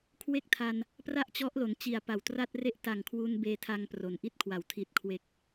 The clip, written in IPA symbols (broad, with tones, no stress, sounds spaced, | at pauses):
kʰ w e˥˩ k̚ tʰ a˧ n | p r a˥˩ ʔ t͡ɕ ɔ˦˥ ʔ l o˩˦ n t͡ɕ i˨˩ a̯ p a˨˩ w t r a˥˩ t̚ r e˥˩ ʔ t a˨˩ ŋ kʰ w u˧ n b eː˧ tʰ a˧ ŋ p r o˩˦ n ʔ i˥˩ t̚ kʰ w a˨˩ w tʰ i˨˩ t̚ kʰ w e˨˩ k̚